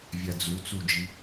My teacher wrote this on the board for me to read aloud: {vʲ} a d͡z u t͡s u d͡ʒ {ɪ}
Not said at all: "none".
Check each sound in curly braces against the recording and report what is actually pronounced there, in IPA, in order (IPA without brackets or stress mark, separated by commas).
vʲ, i